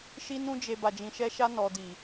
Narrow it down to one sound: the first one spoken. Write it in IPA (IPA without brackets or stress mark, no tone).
ʃ